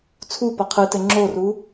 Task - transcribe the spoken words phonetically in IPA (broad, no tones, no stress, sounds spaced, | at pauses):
t͡sʰ u p ʌ qʰ ɨ t ɘ ŋ͡ǁ o r u